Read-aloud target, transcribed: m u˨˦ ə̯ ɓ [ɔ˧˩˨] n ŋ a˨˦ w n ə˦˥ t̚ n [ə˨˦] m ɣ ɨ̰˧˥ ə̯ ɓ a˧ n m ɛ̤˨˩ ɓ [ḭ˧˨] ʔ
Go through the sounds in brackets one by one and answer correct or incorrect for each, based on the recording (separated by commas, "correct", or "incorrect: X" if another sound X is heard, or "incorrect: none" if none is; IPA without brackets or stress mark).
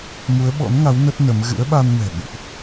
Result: incorrect: ɔ̰˧˥, correct, correct